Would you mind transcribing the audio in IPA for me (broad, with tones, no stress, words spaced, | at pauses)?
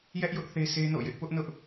jɛ˦ʔjʊ˦ʔ θe˦sʰe˦no̰˦˨jɪ˦ʔ pʊ˦ʔnʊ˦ʔ